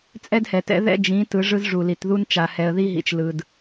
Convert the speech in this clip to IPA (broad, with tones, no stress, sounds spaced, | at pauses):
t͡sʼ ɛ˦ d h ɛ˨ t ɛ̰˦ ð ɛ̰˦ d͡ʒ ĩ˨˦ t ɯ˨˦ ʐ ɯ˦ z ʐ u˨ l i˨ t ð u˦ n t͡ʃ a˨ h ɛ˨ ə̯ ð i˦ ɦ ḭ˨ t͡ʃ l ɯ˨ d